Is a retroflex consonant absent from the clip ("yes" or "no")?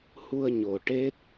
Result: no